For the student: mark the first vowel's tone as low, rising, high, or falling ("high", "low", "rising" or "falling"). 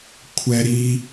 high